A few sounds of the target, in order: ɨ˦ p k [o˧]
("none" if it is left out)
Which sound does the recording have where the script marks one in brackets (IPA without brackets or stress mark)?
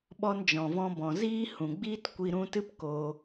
o˧